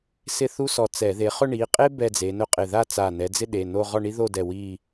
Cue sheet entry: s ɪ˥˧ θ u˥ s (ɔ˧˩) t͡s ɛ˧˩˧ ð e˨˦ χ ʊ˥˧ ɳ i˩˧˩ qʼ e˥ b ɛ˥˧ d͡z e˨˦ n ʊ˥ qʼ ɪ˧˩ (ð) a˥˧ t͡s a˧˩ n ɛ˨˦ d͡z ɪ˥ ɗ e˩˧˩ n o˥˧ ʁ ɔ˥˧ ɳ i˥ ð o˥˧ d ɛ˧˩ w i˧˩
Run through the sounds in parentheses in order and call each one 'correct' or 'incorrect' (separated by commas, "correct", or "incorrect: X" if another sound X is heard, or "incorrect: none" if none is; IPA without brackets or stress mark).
correct, correct